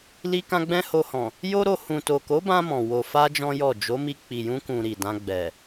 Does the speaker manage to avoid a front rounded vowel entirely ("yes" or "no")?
yes